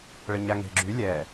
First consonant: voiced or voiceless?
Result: voiced